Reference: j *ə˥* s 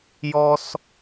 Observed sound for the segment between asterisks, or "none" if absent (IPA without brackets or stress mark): ɔ˥